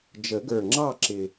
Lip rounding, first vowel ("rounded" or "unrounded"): unrounded